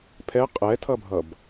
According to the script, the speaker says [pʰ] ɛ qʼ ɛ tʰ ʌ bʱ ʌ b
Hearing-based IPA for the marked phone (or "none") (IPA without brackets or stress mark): pʰ